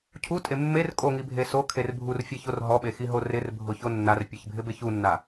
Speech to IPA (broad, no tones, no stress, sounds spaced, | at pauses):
cʰ u tʼ e mː e r kʼ o ŋ i bʱ e s o kʰ e r bʱ u r fʲ ɛ ç o r ɦ ɔ ɓ e x i ɦ o r ɪ r bʱ ʊ ç o nː a r pʲ e ç bʱ ɪ b e ç u nː a